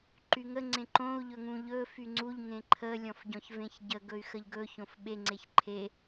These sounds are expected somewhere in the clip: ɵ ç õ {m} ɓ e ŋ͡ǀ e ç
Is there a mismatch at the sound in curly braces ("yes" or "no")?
yes